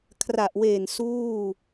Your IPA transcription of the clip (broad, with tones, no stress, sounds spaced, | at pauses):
kʰ r a˨˩ ʔ w eː˨˩ n s uː˥˩